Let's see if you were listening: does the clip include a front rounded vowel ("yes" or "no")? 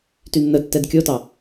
yes